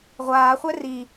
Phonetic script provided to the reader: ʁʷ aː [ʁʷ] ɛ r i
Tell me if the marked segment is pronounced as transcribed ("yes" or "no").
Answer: no